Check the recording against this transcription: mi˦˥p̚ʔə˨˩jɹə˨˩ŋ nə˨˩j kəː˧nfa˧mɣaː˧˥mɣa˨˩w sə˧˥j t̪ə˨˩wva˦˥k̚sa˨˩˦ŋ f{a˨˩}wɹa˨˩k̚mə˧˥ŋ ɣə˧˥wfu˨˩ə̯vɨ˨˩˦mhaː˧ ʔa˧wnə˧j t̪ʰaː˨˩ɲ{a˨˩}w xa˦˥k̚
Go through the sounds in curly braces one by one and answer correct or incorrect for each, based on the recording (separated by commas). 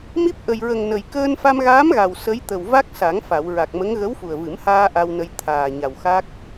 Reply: incorrect, correct